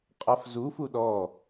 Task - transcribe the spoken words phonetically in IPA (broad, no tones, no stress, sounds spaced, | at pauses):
qʼ a f z u f u ɗ ɔ